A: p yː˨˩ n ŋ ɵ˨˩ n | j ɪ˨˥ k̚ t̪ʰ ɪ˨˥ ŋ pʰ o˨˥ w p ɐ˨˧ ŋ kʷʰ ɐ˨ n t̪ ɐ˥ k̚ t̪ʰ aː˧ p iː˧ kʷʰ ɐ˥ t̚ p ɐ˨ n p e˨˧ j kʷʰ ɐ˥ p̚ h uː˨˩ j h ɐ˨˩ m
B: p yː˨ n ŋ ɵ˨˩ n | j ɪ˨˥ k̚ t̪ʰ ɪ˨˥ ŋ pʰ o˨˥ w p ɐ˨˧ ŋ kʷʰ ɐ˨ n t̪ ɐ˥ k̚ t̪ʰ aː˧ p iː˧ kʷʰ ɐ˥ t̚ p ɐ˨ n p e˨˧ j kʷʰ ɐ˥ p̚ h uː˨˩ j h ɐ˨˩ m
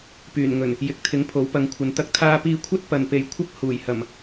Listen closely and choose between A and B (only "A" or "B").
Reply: A